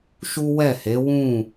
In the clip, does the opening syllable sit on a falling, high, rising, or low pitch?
high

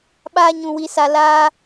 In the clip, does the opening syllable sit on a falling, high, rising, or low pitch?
high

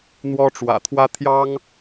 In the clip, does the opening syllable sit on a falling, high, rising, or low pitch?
high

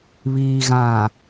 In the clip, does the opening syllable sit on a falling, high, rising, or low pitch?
low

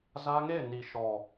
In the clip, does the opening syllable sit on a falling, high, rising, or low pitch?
high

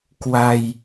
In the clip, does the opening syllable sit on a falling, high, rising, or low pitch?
low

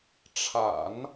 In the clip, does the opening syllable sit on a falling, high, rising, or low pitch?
low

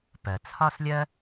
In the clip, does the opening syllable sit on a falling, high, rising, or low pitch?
low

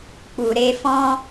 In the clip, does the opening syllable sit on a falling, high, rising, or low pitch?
low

